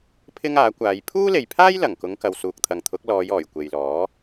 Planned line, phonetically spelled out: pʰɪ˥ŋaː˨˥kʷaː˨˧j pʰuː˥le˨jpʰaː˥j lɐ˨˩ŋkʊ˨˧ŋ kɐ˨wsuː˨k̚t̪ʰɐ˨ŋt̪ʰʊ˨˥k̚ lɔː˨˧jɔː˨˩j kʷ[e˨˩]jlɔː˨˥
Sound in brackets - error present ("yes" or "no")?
yes